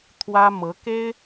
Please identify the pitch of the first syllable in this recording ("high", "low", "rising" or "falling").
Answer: high